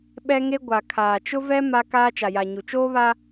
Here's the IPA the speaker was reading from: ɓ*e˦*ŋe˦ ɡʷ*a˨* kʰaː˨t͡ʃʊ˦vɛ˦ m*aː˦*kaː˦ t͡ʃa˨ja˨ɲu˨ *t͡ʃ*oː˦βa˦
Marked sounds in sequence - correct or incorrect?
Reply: incorrect, correct, incorrect, correct

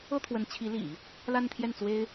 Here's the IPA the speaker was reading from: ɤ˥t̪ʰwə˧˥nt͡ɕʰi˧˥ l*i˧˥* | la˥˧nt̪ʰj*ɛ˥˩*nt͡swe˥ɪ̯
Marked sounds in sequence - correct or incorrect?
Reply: incorrect, correct

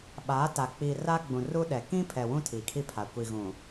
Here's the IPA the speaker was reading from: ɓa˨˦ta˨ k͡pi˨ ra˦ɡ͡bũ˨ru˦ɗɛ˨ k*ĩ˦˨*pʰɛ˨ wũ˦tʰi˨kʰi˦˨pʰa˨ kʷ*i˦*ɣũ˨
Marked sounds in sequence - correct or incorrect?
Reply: incorrect, incorrect

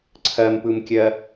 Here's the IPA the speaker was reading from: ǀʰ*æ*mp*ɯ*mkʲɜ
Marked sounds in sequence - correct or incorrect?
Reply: incorrect, correct

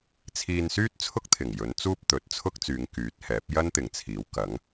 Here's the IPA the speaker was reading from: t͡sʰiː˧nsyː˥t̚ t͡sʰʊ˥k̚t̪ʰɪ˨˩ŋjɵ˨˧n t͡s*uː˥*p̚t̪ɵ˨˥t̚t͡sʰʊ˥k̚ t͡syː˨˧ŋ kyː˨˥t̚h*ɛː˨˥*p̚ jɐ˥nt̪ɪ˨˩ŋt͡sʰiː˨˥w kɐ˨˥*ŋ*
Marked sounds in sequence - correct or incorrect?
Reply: correct, correct, correct

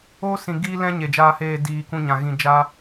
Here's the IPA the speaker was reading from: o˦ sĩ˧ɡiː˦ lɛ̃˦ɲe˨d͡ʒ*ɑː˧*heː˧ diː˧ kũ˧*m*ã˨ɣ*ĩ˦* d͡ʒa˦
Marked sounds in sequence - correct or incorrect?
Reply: incorrect, incorrect, incorrect

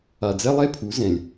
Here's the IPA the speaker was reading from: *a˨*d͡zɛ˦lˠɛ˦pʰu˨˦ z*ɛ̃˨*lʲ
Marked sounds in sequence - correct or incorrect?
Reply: correct, correct

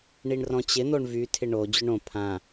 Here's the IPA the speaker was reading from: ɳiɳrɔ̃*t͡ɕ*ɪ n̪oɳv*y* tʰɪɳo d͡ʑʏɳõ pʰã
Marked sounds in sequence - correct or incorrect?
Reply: correct, correct

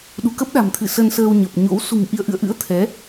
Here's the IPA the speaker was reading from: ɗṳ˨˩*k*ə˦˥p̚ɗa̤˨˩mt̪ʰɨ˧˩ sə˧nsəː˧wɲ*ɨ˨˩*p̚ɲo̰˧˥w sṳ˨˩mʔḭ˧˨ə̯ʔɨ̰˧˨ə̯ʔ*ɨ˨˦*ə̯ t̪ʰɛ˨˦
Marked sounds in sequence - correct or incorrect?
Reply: correct, incorrect, incorrect

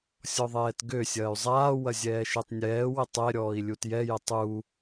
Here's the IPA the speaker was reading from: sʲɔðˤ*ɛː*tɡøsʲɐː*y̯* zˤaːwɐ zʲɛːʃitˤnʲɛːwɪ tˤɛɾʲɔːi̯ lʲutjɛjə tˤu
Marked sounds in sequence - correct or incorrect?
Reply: correct, correct

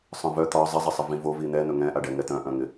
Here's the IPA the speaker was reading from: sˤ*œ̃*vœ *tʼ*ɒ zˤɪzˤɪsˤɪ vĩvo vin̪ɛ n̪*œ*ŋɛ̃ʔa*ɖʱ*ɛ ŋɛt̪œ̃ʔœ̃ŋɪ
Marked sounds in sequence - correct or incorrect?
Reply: correct, incorrect, incorrect, incorrect

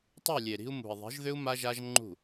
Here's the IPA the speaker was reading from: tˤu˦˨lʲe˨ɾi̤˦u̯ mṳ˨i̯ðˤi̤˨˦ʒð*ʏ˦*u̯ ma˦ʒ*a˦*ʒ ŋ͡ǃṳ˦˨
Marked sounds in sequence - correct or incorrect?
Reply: correct, correct

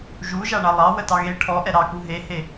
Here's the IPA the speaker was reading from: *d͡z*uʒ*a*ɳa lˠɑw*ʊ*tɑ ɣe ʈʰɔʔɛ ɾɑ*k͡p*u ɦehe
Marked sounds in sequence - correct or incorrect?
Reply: incorrect, correct, incorrect, incorrect

